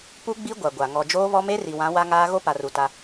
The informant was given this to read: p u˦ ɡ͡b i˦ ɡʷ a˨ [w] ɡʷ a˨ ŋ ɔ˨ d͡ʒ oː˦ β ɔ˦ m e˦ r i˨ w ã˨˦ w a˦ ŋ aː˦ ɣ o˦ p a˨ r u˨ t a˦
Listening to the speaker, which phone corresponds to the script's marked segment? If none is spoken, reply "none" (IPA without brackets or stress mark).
none